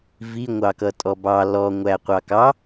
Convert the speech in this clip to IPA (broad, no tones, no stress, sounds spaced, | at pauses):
v i ŋʷ ɑ k ʌ tʼ ɔ b ɑ l ɔ ŋʷ æ qʷ ɑ k ɑ